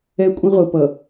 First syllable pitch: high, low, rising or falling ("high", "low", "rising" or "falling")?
high